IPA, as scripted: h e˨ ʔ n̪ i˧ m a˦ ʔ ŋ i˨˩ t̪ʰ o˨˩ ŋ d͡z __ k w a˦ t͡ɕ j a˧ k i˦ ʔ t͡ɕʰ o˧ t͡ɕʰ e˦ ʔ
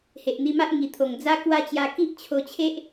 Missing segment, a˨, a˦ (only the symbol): a˦